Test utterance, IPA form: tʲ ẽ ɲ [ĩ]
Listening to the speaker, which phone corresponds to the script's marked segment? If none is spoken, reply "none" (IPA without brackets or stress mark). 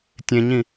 ĩ